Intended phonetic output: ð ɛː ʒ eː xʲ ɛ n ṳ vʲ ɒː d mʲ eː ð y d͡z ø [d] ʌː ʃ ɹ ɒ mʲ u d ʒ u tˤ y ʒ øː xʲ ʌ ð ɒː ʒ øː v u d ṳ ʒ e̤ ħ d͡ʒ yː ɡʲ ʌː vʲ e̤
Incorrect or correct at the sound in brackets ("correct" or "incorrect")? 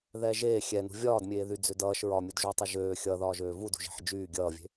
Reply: correct